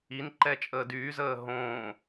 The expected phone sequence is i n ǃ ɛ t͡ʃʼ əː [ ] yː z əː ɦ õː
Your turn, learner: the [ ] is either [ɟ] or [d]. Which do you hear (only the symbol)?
d